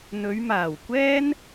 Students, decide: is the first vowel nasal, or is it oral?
oral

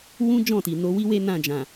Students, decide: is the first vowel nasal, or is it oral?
nasal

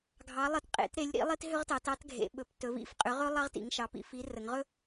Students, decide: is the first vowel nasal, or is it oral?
oral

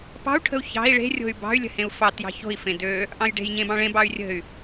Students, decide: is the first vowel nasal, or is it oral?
oral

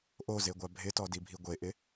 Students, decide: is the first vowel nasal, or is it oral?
oral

